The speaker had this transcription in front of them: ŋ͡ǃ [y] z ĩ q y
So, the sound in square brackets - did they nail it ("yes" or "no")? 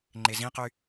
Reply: no